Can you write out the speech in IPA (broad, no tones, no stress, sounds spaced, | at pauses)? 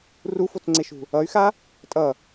r u f o t͡s ŋ͡ǀ e ʃ ṳ | ʌ y̯ x a | tʼ ʌ